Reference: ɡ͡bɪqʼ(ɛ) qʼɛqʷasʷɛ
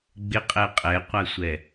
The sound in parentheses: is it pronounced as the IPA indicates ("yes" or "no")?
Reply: yes